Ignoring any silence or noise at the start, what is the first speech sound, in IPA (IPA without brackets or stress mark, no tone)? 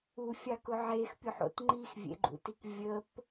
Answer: u